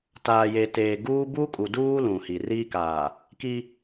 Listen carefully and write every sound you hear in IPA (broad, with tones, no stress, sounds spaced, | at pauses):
t aː˨ j e˨ t eː˨ ɡ uː˦ b u˦ kʼ u˨ d uː˦ l ũ˨ h i˨ r iː˦ k aː˨ | k i˦